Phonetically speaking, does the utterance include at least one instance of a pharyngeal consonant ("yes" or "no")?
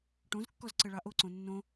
no